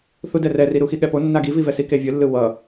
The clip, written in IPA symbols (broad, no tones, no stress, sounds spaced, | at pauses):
θ u d ɛ r ɛ r i ɾ u x i ɠ ɛ p o nː a ɡ i v i v ɛ s i k e vʲ ɯ lː ɯ w ʌ